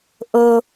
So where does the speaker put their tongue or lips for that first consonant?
throat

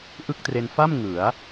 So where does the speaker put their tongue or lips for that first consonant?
throat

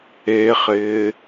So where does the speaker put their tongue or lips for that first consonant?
uvula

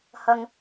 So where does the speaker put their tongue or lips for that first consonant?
throat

